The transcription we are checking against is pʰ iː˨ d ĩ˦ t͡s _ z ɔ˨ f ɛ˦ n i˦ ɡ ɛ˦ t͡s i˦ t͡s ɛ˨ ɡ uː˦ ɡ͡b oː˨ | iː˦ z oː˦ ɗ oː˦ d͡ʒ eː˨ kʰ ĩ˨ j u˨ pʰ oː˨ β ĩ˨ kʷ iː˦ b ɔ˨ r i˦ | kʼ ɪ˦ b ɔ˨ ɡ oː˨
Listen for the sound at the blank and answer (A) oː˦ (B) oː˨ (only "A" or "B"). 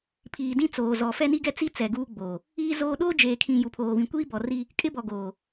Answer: B